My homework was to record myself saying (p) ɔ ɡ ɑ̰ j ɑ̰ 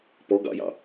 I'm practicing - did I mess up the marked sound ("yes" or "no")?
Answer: no